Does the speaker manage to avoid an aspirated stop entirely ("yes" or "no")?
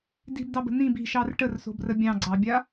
yes